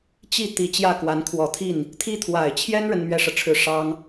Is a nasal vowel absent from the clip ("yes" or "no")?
yes